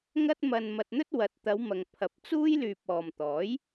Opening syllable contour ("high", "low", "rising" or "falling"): high